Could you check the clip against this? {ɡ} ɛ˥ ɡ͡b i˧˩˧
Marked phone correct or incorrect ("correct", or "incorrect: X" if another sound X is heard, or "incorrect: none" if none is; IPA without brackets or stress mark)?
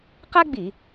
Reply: incorrect: q